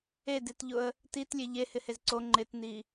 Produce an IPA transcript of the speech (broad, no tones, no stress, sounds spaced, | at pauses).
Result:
e d e t ʎ ʊ ə̯ | t i t lʲ e ʎ e h ɪ h e z ǀ o ŋ͡ǃ ɪ t n i